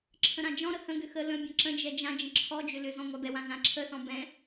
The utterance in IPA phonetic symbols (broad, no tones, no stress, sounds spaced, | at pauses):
ǁʰ ə̃ ɾ ã d͡ʒ ɔ̃ ɾ ə h ə̃ ɡ ʏ x ə l ə̃ bʲ ə̃ ǁ ə̃ d͡ʒ ɛ d͡ʒ ã d͡ʒ ə̃ ǁʰ ɔ d͡ʒ ʏ l ʏ z ɔ̃ ŋʷ a b ɛ w ã z ã ǁʰ ə s ɔ̃ b ɛ̃